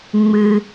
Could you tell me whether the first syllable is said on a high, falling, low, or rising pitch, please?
low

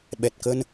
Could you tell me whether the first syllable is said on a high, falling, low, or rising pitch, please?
low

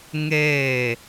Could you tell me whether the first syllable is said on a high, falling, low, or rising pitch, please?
falling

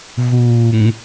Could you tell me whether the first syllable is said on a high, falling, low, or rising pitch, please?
low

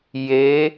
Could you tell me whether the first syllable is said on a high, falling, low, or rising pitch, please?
rising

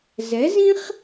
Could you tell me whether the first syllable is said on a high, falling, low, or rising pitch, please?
rising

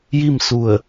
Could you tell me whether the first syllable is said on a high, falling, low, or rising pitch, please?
falling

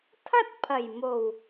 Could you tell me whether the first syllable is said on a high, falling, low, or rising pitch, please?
high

